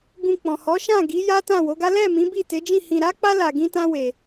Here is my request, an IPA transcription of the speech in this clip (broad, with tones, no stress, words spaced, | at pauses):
ɡũ˧ k͡pɔ̃˨hɔ˨˦ʃã˦˨ ɡi˨˦ja˦tã˦˨ wo˨˦ɡa˦ lɛ˦˨ mĩ˨˦bi˦˨te˨˦d͡ʒĩ˦˨ hĩ˧ɾa˦k͡pa˦ la˧ɡĩ˦tã˦ we˧